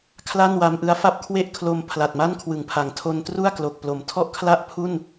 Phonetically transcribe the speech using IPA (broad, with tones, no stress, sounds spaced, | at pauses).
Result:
kʰ l a˥˩ n w a˧ m ʔ ɯ˦˥ a̯ f a˥˩ p̚ kʰ w e˥˩ ʔ kʰ l o˧ m pʰ l a˨˩ t̚ m a˥˩ n kʰ w ɯ˩˦ ŋ pʰ a˩˦ ŋ tʰ o˧ n t r u˥˩ a̯ k l o˨˩ k̚ p l o˩˦ m tʰ ɔ˥˩ ʔ kʰ l a˥˩ ʔ pʰ u˥˩ n